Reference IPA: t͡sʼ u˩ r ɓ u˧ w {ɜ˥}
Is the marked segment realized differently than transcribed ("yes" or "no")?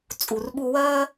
no